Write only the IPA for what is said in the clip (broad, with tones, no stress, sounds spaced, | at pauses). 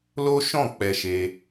l o˦ ʃ ɔ̃˦˨ k͡p ɛ˧ ʃ e˧